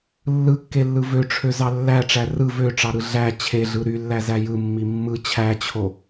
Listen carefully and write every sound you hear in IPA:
lːɯkːelːɯ vøʈ͡ʂʰøzɑ lːæʈ͡ʂæ rɯ vøʈ͡ʂɑɾɯ ɮæ t͡ɕʰeɮɯ ɾylːæzæ jɯmːi mːɯ t͡ɕʰæt͡ɕʰo

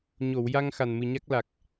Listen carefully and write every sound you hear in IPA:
ɲo˨˩˨wja˧ŋ xa˨˩nmɨ˨˩ɲa˦˥k̚la˨˩k̚

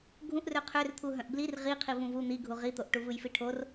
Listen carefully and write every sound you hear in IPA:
ɡʱũʔrø qʰørt̪ʰu ɦœ̃ʔblir ʁiqʰi vũvu n̪iɡʱu ʁit̪oʔ ʈuvɯjfiʈʰor

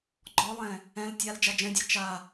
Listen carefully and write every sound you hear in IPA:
ɡ͡ǃɔlˠɛ̃ | ɛ̃l tʲal d͡ʒad͡ʒɛ̃dʲe t͡ʃa

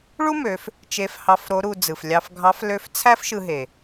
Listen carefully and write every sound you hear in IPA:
ɭu˥mø˩˧f | t͡ʃe˧˥fhɑ˧˥f ɾo˧˥ɾu˧ d͡zɯ˩flʲɑ˧fɡʱɑ˧˥f lø˧˥f t͡sʰæ˥fʃɯ˧ɦe˩

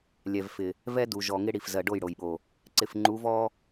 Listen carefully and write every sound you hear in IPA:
lʲɛ˨vfɪ˨ | vɛ˦du˨ʒɔ˨ ŋɪ˦ɽi˨f zɜ˨ɖo˦˨jɽo˨jɓo˨ | ǀɪ˨fŋ͡ǃu˨˦vɔ˦

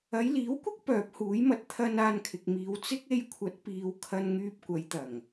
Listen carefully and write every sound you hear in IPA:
ɐ˨˧jliː˨˥wkʷɪ˥k̚ pœː˨˥p̚huː˨˥jmɐ˧t̚ t̪ʰɐ˧n aː˧nkʰɪ˨k̚miː˨˧w t͡sɪ˥k̚ e˧jkʷʰɐ˨˥t̚piː˨w kʰɐ˧nŋyː˧p̚kʷɐ˨˧jt̪ɐ˨˩ŋ

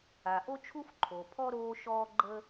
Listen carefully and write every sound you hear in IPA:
a˩ʔo˥t͡ʃʰu˥f ǃʰo˩ pʰɔ˥ ɾoː˧ʃɔː˧ ɡ͡ǃəː˥

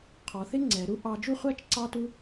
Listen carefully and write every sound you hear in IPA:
qʰɔ˩˧θɪ˥ ŋ͡ǀɛ˩˧ ɾu˥ʔɑ˧ d͡ʒu˥˧χʷæ˥t͡ʃ ǀɑ˥tu˥

